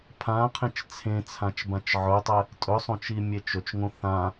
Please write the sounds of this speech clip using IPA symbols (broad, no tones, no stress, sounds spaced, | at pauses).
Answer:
pʰ ã qʰ ẽ t͡ʃ t͡sʰ ẽ t͡sʰ ã t͡ʃ b ã t͡ʃ ʕ ɵ tˤ ɛ | tʼ ɵ sˤ õ t͡ʃ i mʲ e t͡ʃ ɵ t͡ʃ ŋ õ θ ã